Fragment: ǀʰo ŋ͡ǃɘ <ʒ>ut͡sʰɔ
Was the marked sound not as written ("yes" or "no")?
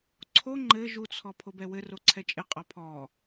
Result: no